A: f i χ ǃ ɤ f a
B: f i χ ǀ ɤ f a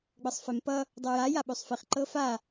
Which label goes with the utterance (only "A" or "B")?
A